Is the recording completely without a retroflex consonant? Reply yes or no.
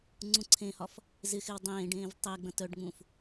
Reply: no